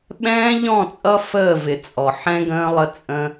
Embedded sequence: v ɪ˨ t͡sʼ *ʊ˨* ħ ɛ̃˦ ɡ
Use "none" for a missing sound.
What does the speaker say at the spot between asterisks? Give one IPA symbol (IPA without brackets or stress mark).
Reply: ɔ˨